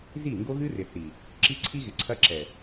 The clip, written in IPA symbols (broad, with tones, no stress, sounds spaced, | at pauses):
z i˦˨ ŋ ɡ o˦ ɣ ɨ˦ r ɪ˨ θ i˨ | ǁ i˦ ǀʰ i˦ ɣ ɪ˨ ǀʰ ɐ˦ ǁ ɛ˨